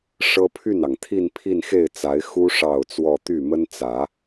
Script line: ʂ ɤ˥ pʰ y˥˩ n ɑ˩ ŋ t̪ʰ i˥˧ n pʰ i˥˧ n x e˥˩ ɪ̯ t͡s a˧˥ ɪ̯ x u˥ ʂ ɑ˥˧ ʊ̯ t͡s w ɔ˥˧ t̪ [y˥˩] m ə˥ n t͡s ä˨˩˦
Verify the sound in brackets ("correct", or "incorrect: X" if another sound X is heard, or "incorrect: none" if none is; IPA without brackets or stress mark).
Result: correct